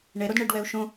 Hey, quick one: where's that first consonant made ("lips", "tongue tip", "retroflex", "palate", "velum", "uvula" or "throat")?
retroflex